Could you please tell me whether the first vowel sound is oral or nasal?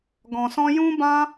nasal